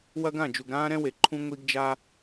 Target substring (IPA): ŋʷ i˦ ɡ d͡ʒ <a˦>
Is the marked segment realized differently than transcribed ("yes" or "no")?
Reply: no